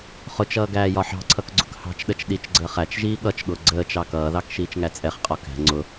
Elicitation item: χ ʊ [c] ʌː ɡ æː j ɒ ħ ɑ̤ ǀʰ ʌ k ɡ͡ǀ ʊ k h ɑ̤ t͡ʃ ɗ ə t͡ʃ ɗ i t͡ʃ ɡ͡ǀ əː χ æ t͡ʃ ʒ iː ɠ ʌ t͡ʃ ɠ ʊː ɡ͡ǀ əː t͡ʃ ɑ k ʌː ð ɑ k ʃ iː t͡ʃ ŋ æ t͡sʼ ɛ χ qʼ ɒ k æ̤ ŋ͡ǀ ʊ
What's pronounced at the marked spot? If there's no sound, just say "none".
t͡ʃ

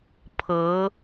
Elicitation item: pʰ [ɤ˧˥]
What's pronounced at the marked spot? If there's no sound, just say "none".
ɤ˧˥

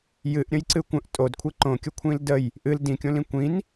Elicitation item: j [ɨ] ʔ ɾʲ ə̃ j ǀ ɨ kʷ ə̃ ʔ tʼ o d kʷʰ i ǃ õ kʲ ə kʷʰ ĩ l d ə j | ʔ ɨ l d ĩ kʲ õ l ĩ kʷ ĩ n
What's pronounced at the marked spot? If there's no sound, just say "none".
ɨ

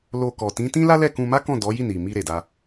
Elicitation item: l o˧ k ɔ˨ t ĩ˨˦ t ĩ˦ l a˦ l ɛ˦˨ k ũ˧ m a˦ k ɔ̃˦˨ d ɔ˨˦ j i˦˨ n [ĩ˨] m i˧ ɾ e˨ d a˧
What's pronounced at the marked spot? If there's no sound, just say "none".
i˨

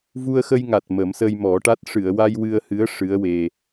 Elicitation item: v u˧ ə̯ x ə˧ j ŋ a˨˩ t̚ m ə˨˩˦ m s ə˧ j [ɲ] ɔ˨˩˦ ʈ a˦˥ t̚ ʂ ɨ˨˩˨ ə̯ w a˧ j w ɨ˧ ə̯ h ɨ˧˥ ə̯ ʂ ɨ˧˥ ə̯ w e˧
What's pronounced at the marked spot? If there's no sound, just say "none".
m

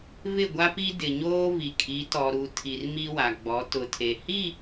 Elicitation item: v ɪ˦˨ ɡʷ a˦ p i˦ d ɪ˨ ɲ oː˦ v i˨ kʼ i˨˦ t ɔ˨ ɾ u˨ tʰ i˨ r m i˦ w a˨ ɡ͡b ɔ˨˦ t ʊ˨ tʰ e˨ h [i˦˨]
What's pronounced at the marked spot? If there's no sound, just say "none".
i˦˨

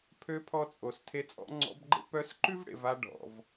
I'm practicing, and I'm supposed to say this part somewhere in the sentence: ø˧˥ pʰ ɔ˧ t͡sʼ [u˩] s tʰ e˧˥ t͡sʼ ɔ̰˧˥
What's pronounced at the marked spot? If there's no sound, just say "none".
o˩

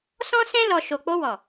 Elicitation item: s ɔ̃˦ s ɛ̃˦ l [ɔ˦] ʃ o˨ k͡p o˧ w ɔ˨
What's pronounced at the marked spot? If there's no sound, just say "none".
ɔ˧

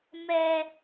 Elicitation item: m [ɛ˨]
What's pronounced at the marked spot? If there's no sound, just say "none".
ɛ˦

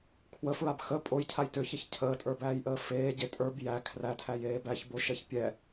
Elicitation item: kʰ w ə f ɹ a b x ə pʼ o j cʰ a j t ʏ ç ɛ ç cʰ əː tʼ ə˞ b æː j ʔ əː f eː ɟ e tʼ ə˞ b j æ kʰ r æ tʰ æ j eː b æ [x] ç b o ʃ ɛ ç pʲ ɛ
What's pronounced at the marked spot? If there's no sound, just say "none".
none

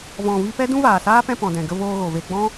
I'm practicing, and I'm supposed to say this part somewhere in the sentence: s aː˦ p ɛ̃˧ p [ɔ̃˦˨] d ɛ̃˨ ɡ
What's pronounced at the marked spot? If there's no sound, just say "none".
ɔ̃˨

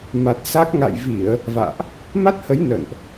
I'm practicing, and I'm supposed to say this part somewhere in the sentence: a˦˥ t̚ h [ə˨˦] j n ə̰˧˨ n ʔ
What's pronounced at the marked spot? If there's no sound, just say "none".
ə˨˦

